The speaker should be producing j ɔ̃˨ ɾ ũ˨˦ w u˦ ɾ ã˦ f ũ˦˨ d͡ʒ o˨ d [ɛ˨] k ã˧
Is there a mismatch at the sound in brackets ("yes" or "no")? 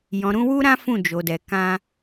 no